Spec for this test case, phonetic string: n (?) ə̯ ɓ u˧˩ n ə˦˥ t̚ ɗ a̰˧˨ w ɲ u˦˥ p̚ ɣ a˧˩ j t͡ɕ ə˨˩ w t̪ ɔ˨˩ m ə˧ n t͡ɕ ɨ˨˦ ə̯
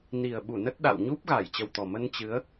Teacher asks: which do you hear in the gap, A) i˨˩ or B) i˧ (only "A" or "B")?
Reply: A